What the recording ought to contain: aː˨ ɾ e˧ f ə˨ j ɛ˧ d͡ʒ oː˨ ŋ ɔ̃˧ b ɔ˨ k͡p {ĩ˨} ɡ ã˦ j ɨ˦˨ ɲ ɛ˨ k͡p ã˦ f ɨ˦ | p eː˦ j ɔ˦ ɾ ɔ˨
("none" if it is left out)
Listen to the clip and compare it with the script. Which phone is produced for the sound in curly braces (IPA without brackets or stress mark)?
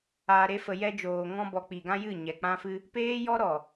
i˨